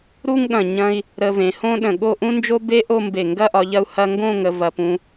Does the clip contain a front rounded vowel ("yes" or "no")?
no